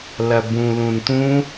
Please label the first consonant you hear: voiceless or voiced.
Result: voiced